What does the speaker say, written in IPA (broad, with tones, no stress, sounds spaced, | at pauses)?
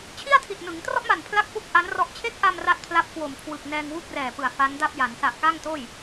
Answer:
t͡ɕʰ i˥˩ a̯ tʰ i˨˩ t̚ n ɯ˩˦ ŋ t r ɔ˥˩ ʔ m a˨˩ n pʰ l a˥˩ k̚ f u˥˩ k̚ ʔ a˦˥ n r ɔ˦˥ ʔ t͡ɕʰ e˦˥ k̚ ʔ a˧ m r a˥˩ t̚ pʰ l a˥˩ p̚ k w o˨˩ m kʰ w ɯ˨˩ k̚ n ɛː˧ ŋ w u˥˩ k̚ r ɛː˨˩ p ɯ˨˩ a̯ f a˦˥ n d a˥˩ p̚ j a˩˦ n s a˨˩ ʔ k a˥˩ ŋ t oː˥˩ j